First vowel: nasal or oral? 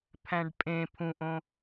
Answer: nasal